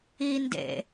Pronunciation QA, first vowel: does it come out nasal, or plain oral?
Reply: oral